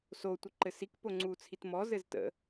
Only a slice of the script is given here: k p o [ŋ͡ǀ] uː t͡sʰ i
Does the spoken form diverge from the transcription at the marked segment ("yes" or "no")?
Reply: no